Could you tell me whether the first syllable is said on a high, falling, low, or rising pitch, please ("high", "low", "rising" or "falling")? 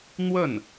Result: falling